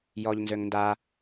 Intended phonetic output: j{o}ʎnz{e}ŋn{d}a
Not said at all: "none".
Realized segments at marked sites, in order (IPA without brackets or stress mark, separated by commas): ɔ, ø, d